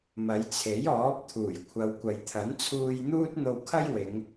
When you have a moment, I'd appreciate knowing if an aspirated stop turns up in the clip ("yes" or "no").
yes